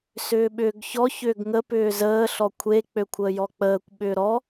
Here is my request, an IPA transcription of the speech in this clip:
s ʏː ɓ ʏː ɡ ç ɔ ç ʏː ɡ ŋ ə p ʏː z əː ɬ ɔ kʷʰ e k͡p ø kʷʰ əː j ɔ k͡p əː kʷ ɓ ʏː ɾ ɔ

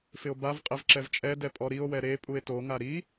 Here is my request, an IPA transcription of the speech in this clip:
f ɪ o̯ b a v qʼ ɪ v ǁ ɛ v t͡ʃʼ ɛ d ɛ pʼ ɔ ɾ i o̯ w ɛ ɾ e pʼ u e̯ t o ŋ a ɾ i

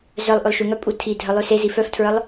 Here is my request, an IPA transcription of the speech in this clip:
z œ lˠ ʔ ʉ lˠ ʃ ʉ ŋ œ pʼ u tʰ i dʱ œ lˠ ʉ s e z i f œ f tʰ ɹ œ lˠ

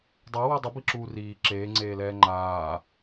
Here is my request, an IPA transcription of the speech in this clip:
dˤ ɛ w u dˤ u b i ǁ uː r iː ǁ eː ŋ͡ǀ eː l ɛː ŋ͡ǃ aː

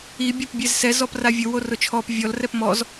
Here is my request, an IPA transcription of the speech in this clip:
i bʲ ɔ p bʲ ɛ z s ɛ z ɔ p r a vʲ ʊ w o r ʊ t͡ʃʰ ɔ p vʲ ɔ l r ɛ p m ɔ z

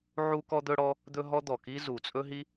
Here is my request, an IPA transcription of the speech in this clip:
ʕ u˥ k ɔ˥ d̪ ɵ˥ ɽ ɔ˥ | d̪ ɵ˥ ɦ ɔ˥ d̪ ɔ˨˩ k i˥ z u˨˩ t͡sʼ ɵ˥ ɦ i˥

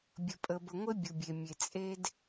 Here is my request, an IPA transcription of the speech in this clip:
bʲ ə˨ pʼ ə˨ b ə˨ ŋʷ e˦ bʲ u˨ bʲ e˨ mʲ e˨ t͡sʼ e˦ d

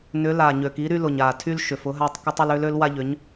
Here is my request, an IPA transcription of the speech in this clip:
n ʏ˨˥ l a˨˩ ɲ ø˨˩ k i˨˥ ɾ y˦ l ʊ˨˩ ɲ a˨˩ tʰ y˦ l ʃ ʏ˨˩ f ʊ˨˥ ɦ a˦ tˤ k ʊ˦ tˤ ʊ˦ l ø˨˥ l ø˨˥ l w a˦ ʎ ʏ˨˥ ɲ

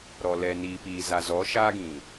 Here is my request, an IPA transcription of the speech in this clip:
ɾ ɔ˨ l ɛ˨ n iː˨ p iː˨ z a˨ z ɔ˨˦ ʃ aː˦ ɡ ĩ˨

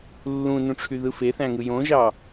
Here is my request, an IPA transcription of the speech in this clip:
lː ũ n ũ ʈ͡ʂʰ y ð ɯ f e θ æ̃ ŋ ɯ j õ ʒ ɑ

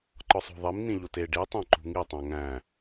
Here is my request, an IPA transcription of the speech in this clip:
ǃ ɒ sˤ o̤ ðˤ i m n̪ ĩ ʎ o t e ɖ i tˤ æ̃ ǃ ṳ ŋ i tˤ æ̃ ŋ æ̃

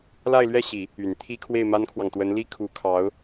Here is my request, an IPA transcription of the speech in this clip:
l a˥˧ ɪ̯ l ɥ ɛ˥˩ ɕ i˨˩˦ | y˨˩ n t̪ʰ i˥ kʰ w e˥˩ ɪ̯ m a˥ n kʰ w ɑ˨ ŋ t̪ w ə˧˥ n l i˥ kʰ u˧˥ kʰ ɑ˧˥ ʊ̯

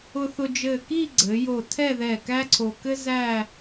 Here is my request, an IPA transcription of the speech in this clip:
ʊ˧ θ ʊ˧ d͡ʒ ɘː˧˩ k i˥˧ ɡ͡ǀ ɘ˩˧ j o˧˩ tʰ ɛ˥˧ ð ɛ˧˩ k æ˥ ǀʰ o˧ k ɘ˥ z æː˥˧

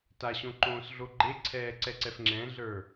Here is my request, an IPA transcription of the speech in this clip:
t a ɕ õ ǃ õː s ɮ o ɡ͡ǃ e ǀʰ ɛː ǀ ɛ ǀ ɛ f ŋ͡ǁ ɛ̃ ɮ ə˞

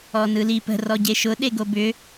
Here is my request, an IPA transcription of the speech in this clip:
ɔ n ɯ l i p ə̤ r ɔ ɟ e ʃ ʊ ɗ e ɡ o b ʏ

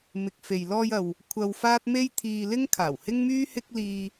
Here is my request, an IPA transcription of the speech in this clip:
m ɪ˨ k̚ f e˨ j l ɔː˧ j ɐ˨ w | kʷʰ ɐ˧ w f aː˥ t̚ m e˥ j t̪ʰ iː˧ l ɪ˥ ŋ kʰ aː˨˩ w h ɪ˥ ŋ m yː˥ h ɪ˥ k̚ l iː˧

